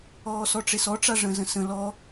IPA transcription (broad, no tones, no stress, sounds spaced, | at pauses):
ɔː s ɔ ʈ͡ʂ e s ɔ ʈ͡ʂ a ʐ ə̃ z ə̃ s ə̃ l ɔ